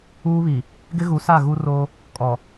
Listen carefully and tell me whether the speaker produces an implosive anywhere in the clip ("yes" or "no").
no